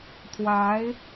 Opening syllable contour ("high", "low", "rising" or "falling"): rising